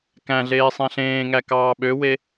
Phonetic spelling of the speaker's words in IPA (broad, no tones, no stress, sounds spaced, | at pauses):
k æ̃ ɮ eː sˤ æ̃ ɬ ẽː ŋ æ k ɑː ɓ ø w e